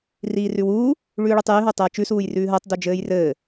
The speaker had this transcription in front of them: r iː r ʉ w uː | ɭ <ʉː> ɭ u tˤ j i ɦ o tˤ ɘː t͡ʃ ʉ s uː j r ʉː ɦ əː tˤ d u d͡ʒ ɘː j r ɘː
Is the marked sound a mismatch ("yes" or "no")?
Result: no